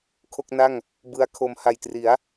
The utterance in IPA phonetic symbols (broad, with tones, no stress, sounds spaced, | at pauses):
kʰ o˥˩ k̚ n a˥˩ ŋ | b ɯ˦˥ a̯ kʰ o˧ m h a˨˩ j t r i˩˦ a̯